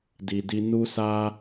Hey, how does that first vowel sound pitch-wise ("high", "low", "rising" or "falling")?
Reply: low